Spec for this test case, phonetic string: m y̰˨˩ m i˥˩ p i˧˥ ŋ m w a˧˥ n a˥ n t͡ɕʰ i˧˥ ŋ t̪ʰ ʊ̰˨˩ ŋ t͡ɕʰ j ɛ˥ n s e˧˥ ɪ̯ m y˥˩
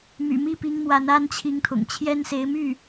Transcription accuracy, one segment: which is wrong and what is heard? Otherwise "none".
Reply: none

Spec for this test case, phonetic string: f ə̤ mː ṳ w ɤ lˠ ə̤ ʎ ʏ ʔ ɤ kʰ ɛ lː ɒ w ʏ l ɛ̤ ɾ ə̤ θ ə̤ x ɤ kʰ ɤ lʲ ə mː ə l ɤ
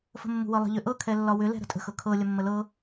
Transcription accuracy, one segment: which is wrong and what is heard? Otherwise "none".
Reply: θ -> tʼ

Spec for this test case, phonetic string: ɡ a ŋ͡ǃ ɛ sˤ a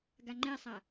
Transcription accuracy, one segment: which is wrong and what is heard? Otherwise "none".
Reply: none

